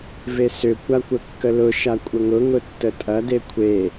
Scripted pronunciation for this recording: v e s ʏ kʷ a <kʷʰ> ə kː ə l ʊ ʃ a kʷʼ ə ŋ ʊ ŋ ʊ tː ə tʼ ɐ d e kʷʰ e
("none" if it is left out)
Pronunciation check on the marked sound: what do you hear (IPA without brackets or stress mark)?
kʷ